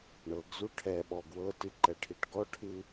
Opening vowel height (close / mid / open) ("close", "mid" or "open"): mid